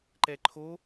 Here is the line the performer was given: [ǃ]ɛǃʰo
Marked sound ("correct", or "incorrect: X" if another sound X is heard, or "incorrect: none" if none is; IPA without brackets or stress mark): correct